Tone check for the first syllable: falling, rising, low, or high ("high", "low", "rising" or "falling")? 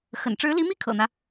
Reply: low